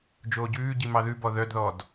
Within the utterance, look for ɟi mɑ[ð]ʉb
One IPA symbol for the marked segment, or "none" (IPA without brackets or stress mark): ð